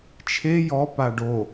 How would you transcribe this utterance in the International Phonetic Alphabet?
t͡ʃʰ e j ɔ p a ɖ o

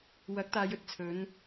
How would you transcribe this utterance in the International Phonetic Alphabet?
w ɐ˨˥ k̚ t̪ aː˨˧ j ɵ˨˥ t̚ t͡sʰ ɵ˨˥ n

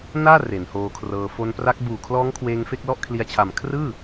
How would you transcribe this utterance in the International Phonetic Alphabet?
n aː˥˩ r e˩˦ n h oː˧ kʰ r ɤː˧ f o˧ n p r a˦˥ k̚ b uː˨˩ kʰ l ɔː˦˥ ŋ kʰ w eː˧ ŋ f e˥˩ k̚ l ɔ˥˩ ʔ kʰ l i˧ a̯ t͡ɕʰ a˨˩ m kʰ r ɯː˥˩

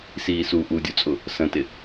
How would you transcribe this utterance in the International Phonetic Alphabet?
s iː s u ʔ u dʲ u t͡sʼ ʊ | s ə̃ t ɪ

